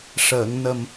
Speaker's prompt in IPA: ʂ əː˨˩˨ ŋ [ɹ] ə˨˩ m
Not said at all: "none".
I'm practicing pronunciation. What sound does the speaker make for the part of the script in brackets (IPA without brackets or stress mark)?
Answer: n